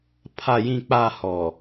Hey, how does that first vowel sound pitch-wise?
low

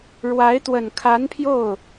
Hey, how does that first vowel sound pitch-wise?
rising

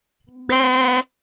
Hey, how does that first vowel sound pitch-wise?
high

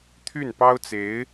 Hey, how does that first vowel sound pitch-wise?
falling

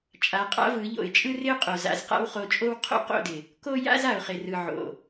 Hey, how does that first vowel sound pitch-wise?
rising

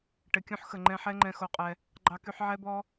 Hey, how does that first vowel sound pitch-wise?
low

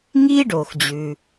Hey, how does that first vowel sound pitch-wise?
high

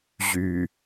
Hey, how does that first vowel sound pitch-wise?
low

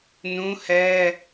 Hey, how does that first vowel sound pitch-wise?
high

